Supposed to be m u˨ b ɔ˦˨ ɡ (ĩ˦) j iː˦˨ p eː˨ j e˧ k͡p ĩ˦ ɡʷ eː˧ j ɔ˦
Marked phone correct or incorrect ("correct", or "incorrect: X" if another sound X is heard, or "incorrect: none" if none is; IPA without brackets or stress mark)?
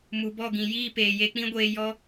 incorrect: ĩ˨